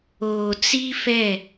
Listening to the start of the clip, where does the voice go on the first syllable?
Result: low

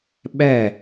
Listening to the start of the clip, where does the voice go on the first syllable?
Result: falling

